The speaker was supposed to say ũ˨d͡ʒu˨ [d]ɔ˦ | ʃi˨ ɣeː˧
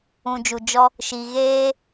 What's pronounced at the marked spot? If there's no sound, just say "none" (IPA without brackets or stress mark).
d͡ʒ